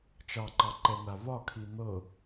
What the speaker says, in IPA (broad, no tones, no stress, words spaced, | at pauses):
t͡ʃɑǃɑǃɛn̪a βɒkʰi n̪ɤ